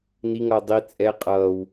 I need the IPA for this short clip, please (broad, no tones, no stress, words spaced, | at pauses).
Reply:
niŋʌː dˤi t͡sʼɛ qʼʌːw